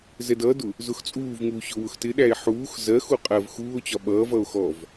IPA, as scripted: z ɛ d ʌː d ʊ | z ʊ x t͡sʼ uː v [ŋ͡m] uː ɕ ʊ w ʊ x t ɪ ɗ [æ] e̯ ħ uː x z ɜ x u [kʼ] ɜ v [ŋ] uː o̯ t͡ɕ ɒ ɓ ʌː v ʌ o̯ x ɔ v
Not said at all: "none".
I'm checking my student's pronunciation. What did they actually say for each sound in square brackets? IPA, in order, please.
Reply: ŋ, æ, qʼ, x

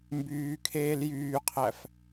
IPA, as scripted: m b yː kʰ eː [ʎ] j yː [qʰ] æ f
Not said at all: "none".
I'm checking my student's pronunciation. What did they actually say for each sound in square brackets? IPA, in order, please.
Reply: l, qʰ

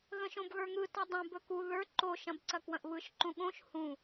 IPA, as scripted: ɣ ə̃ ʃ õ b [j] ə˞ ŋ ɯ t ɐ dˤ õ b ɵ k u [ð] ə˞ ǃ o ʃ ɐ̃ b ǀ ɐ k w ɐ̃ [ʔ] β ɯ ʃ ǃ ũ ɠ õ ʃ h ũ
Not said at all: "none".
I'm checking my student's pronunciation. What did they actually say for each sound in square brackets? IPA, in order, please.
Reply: ɣ, ð, ʔ

